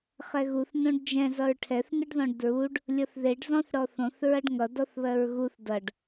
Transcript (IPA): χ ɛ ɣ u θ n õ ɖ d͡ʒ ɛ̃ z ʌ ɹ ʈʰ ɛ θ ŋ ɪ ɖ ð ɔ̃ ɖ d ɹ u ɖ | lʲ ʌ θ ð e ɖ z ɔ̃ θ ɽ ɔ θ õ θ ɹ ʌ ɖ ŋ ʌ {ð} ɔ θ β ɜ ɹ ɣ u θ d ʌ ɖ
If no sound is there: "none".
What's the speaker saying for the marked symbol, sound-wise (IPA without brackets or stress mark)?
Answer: d